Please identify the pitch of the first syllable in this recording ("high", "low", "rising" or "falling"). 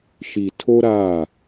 low